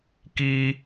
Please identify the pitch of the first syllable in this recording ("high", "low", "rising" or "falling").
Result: high